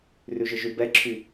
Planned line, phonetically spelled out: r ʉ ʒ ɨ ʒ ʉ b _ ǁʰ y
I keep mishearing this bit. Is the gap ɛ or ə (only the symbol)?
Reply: ɛ